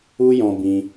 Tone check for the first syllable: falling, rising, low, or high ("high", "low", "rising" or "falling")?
high